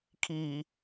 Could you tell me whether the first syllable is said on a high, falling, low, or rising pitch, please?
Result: low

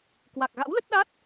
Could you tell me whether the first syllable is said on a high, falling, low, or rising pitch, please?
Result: low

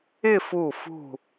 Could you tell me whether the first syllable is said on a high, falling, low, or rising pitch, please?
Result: falling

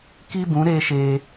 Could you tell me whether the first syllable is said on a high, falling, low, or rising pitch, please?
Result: high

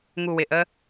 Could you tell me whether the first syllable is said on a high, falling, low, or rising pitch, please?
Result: low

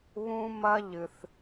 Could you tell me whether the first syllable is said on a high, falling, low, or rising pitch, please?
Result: high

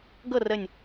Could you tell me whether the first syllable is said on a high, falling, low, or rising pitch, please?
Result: falling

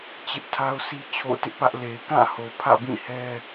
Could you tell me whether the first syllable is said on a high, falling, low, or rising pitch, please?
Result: high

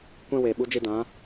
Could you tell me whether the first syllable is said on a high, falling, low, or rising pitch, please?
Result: high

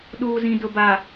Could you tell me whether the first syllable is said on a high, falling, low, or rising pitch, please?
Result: low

